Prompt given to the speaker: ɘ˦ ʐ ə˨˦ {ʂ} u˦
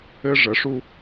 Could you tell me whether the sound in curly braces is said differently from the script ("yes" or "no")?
no